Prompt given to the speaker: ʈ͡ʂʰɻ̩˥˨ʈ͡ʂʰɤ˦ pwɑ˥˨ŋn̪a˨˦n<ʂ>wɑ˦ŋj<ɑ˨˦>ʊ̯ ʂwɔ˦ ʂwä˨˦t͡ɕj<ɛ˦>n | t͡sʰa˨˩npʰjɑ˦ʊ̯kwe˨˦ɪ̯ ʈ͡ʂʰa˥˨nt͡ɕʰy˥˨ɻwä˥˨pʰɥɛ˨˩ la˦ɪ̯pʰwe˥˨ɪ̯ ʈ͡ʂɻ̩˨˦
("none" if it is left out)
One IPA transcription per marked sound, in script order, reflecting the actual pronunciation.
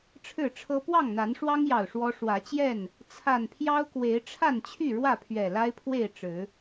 ʂ, ɑ˨˩, ɛ˥˨

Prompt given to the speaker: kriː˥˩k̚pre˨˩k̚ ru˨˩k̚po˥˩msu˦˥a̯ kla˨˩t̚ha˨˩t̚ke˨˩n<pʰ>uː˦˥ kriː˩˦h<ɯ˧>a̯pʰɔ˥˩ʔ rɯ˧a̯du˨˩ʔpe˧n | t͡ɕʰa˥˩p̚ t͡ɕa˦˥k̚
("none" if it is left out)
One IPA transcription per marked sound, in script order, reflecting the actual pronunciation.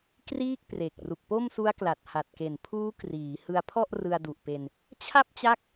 pʰ, ɯ˧

